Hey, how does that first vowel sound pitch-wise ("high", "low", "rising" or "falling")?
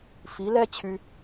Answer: rising